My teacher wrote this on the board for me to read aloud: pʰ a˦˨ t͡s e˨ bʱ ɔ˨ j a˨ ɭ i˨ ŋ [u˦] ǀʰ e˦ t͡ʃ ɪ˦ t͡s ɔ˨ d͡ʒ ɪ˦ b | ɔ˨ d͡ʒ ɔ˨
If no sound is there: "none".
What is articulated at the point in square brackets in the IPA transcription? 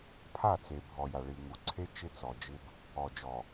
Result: u˨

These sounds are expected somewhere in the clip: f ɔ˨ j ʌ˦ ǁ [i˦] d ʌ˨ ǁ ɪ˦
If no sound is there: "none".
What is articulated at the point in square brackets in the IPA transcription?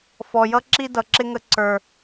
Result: i˦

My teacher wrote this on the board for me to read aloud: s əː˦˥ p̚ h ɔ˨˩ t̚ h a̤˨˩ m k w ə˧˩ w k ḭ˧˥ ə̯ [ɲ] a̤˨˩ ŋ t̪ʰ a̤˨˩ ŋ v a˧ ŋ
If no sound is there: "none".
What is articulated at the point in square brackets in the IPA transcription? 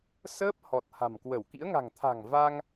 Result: ŋ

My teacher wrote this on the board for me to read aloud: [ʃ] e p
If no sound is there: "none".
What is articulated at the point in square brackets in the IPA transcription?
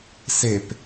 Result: s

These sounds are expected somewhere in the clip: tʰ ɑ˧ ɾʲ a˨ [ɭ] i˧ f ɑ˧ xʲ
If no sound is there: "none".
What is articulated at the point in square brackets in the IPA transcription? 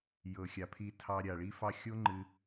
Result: ɭ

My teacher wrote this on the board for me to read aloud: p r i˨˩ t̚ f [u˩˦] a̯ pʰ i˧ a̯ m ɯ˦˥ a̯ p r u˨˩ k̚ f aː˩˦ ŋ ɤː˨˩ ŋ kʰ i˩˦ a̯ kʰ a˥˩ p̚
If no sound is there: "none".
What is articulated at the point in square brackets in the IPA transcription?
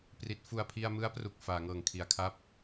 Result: u˨˩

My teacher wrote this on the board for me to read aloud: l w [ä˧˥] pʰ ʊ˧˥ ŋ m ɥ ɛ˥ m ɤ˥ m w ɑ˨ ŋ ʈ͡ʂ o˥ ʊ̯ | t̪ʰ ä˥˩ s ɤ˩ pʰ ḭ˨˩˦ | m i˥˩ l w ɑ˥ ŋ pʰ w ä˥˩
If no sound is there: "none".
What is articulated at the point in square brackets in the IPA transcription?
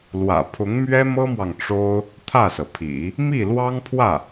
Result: ä̰˨˩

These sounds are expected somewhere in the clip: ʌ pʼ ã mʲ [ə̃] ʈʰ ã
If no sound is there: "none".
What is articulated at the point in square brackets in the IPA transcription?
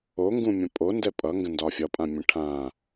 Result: ə̃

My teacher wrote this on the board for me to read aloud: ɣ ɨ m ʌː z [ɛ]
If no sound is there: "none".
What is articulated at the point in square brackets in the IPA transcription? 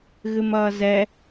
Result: ɛ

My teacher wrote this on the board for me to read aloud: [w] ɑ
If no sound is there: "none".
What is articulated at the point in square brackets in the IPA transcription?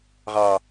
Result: ʁ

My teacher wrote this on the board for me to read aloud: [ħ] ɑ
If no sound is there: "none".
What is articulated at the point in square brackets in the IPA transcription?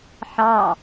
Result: ħ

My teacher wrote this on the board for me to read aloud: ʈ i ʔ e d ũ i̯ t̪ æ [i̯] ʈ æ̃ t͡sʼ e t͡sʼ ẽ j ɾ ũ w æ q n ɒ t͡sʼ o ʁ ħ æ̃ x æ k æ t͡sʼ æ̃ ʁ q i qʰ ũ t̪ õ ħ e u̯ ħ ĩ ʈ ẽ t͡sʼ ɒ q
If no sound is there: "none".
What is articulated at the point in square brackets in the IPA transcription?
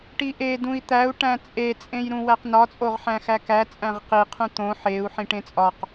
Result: u̯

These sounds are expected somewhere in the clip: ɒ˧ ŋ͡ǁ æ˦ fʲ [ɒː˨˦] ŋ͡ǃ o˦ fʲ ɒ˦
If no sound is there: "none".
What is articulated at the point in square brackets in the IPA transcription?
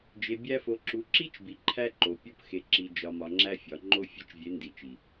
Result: ɒ˨˦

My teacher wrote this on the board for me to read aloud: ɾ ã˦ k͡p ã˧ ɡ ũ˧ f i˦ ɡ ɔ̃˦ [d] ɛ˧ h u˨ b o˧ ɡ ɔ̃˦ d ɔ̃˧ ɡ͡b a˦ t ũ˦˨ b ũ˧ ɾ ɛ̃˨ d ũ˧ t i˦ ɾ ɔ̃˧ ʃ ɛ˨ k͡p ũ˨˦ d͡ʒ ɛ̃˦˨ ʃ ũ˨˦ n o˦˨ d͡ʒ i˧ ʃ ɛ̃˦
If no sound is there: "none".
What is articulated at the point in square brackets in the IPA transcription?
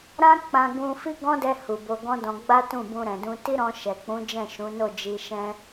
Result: d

